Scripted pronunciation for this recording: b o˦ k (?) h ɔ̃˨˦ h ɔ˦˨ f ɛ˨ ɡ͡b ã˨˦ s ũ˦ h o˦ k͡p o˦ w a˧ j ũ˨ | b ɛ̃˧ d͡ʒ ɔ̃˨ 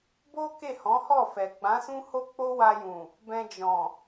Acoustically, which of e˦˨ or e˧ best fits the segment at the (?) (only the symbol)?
e˦˨